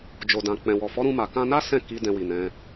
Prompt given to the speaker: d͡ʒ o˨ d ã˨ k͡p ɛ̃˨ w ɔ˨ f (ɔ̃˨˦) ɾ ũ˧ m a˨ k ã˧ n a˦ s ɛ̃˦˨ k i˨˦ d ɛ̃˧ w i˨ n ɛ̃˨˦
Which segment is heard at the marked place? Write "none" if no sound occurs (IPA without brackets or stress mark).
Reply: ɔ˨˦